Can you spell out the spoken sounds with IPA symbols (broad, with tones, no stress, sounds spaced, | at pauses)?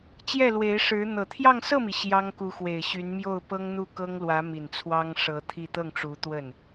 t͡ɕ j ɛ˥˩ l w e˧˥ ɪ̯ ʂ ɻ̩˧˥ n̪ ɤ˨˩ t̪ʰ j ɑ˥˧ ŋ s ɤ˥˩ m i˩ ɕ j ɑ˥ ŋ k u˧˥ x w e˨˩ ɪ̯ ɕ y˧˥ n m j o˥˩ ʊ̯ p ɤ˥ ŋ n̪ u˥˩ k ɤ˥ ŋ l w ä˧˥ m i˨˩ n t͡sʰ w ɑ˥ ŋ ʂ ɤ˧˥ t̪ʰ i˥˧ t̪ ɤ˥˩ ŋ ʈ͡ʂ u˧˥ t̪ w ə˥˩ n